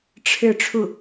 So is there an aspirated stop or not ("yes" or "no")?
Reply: yes